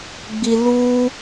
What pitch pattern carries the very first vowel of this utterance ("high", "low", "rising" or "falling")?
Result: low